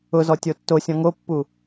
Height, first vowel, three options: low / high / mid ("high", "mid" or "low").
high